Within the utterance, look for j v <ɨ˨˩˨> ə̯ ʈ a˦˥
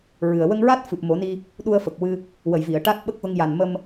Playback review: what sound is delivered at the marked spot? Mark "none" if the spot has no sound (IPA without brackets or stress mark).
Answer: i˨˩˨